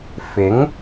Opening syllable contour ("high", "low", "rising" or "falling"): rising